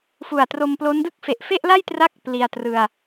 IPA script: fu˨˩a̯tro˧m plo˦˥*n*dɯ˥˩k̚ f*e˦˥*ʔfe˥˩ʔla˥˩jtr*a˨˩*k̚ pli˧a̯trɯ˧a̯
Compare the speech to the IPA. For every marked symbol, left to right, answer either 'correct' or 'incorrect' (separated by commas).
correct, incorrect, incorrect